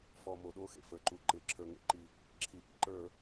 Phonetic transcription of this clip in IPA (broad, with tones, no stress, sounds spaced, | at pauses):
f ɔ˩ m o˩ ɗ o˧˩˧ x ḛ˩ f ə˞˩ ǃ u˩ ǃ ɪ˩ ǁʰ ə˞˩ ŋ ḛ˧˩˧ ǃ i˩ | ǁʰ i˩ ʔ ḭ˩ ǃ ə˞˧˩˧